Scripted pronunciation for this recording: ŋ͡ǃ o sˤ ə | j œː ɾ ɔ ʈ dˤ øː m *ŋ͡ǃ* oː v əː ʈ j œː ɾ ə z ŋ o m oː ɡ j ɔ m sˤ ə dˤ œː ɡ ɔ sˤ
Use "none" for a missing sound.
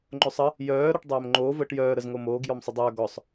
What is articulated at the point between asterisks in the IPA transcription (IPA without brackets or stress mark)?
ŋ͡ǃ